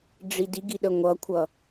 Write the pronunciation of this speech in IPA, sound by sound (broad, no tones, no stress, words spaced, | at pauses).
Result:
ɖ͡ʐidiɡi ɗəŋʷʌkʷʰʌ